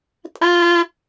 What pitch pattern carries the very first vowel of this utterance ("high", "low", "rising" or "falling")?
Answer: high